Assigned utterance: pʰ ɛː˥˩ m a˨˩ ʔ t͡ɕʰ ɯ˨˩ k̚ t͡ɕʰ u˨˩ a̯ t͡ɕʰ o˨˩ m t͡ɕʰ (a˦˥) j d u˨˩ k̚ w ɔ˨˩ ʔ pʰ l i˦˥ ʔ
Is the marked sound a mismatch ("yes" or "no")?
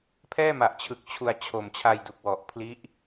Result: yes